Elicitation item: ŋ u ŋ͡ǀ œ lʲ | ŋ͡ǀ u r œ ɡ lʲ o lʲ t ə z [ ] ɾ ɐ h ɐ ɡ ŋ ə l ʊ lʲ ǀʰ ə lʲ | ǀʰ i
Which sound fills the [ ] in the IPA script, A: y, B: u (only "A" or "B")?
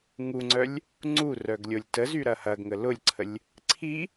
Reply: A